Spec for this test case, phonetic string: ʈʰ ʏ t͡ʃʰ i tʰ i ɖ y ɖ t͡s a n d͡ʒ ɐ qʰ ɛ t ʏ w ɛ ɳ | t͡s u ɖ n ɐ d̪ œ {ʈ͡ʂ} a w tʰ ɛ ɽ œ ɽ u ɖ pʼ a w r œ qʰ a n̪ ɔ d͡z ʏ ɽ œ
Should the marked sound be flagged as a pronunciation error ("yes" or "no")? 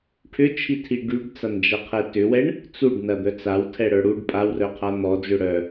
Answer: yes